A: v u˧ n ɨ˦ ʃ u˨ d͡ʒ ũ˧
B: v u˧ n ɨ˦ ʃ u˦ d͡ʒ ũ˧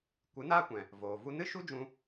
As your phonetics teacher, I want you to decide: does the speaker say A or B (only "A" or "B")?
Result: B